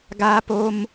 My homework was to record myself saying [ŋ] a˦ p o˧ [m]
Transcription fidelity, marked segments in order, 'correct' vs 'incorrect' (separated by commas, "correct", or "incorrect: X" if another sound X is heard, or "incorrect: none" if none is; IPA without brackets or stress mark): incorrect: ɡ, correct